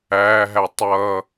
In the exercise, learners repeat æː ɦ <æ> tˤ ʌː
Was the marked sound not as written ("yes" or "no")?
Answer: no